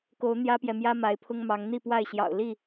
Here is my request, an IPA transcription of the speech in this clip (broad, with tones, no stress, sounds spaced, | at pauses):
k o˨˦ ʊ̯ n̪ j ä˦ p j ɛ˨ m j ä˦ m a˨˦ ɪ̯ pʰ ʊ˦ ŋ m ɑ˨˦ ŋ n̪ i˥˨ p w a˥˨ ɪ̯ ɕ j ɑ̰˨˩ ʊ̯ l i˥˨